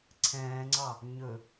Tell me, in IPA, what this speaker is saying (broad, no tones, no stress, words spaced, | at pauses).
ǀʰɛ̃ːŋ͡ǀɑ | ɲɵ